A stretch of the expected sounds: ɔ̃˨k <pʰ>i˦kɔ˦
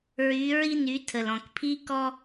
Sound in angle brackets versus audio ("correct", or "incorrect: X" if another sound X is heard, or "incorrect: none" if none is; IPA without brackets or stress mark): correct